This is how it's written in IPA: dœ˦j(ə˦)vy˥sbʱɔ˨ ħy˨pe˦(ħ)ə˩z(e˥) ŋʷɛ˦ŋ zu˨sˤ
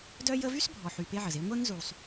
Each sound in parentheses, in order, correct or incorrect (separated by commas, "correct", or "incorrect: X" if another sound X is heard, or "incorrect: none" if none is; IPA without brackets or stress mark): correct, incorrect: ʕ, correct